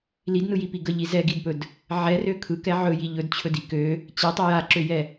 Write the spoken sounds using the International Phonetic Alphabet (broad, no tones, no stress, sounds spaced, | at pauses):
l i d n ɯ j i p i ɡ ə ʎ i z ɛ ɡ i d p ɵ d | ʕ ɛ r ø kʰ ɯ k ɛ ʕ ɵ j i ʎ ɵ d t͡ɕʰ ɵ d i k ø | t͡ɕ ɛ tˤ ɵ j a ǁ ø j ɛ